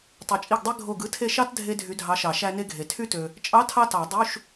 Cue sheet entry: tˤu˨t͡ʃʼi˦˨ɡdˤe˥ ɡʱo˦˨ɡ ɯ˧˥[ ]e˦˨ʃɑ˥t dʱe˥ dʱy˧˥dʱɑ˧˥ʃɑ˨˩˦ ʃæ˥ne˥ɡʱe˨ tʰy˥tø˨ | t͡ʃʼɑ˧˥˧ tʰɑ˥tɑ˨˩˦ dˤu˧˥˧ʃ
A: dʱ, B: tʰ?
B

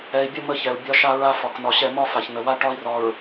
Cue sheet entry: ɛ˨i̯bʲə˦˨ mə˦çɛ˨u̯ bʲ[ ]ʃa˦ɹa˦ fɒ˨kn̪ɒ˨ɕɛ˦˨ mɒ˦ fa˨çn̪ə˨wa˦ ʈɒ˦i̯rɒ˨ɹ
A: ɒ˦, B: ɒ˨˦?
A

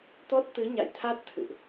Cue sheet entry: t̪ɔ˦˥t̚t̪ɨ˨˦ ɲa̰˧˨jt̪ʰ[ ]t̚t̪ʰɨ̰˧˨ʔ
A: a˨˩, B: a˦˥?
B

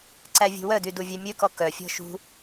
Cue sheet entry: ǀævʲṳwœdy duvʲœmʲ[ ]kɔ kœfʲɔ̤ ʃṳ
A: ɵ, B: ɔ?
A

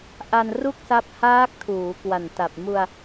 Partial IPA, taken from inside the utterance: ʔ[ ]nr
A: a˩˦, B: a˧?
B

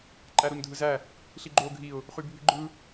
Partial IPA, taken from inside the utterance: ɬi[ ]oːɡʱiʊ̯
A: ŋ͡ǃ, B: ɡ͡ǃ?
B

